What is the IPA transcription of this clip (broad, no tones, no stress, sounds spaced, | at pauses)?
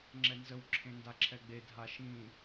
ŋ͡ǁ ɛ n z ə w ǁʰ ẽ n d a ǁʰ ɛ ɡ͡b e dʱ a ʃ ĩ